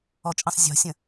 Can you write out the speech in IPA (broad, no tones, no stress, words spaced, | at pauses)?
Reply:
ɔt͡ʃʼə̃sˤ zʲɔ̤sʲə̃